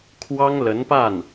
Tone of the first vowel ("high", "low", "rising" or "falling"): high